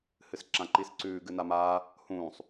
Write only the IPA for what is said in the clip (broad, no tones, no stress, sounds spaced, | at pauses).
h ɨ s ǁ ã ǃ i s ǀ ʉː ɡ ɨ n a m aː | h ũː sˤ